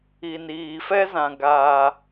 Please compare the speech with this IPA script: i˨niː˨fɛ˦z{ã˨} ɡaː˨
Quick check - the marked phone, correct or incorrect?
correct